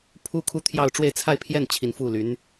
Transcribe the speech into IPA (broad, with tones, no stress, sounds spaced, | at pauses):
pʰ u˥ kʰ u˥˧ t̪ʰ j ɑ˥˧ ʊ̯ ʈ͡ʂ w e˥˧ ɪ̯ t͡sʰ a˥˧ ɪ̯ pʰ j ɛ˥˩ n t͡ɕʰ i˨˩ n f u˥˩ l y˧˥ n